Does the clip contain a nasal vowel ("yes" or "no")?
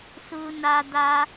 no